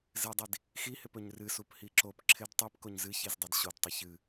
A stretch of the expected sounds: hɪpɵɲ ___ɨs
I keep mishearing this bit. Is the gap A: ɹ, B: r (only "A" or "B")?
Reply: B